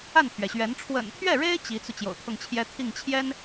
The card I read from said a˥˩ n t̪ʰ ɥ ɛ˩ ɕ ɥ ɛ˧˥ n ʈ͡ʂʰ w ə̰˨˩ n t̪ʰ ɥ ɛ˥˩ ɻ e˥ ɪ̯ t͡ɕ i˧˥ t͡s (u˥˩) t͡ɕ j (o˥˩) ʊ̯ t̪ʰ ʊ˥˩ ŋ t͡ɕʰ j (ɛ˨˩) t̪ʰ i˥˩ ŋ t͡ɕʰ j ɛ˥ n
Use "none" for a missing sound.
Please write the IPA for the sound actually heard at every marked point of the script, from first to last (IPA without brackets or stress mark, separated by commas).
u˧, o̰˨˩, ɛ˥